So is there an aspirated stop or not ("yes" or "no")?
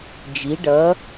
no